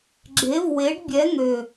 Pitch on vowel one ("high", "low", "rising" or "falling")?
rising